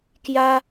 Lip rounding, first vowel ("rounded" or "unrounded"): unrounded